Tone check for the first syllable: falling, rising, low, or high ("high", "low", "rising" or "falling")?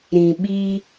low